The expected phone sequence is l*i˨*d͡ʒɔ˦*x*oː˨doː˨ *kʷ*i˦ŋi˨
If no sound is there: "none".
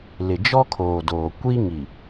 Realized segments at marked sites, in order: ɪ˨, kʰ, kʷ

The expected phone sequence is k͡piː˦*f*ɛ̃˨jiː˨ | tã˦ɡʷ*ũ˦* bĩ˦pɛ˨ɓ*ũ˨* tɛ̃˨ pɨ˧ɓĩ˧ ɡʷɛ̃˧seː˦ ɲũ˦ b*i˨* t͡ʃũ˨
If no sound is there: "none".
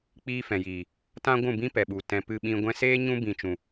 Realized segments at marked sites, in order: f, ũ˦˨, u˨, ĩ˨

